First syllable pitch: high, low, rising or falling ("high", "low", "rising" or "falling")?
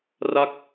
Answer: falling